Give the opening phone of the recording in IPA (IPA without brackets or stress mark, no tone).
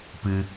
p